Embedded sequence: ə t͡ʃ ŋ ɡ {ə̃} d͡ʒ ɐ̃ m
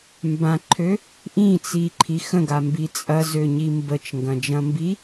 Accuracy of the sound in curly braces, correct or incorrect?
incorrect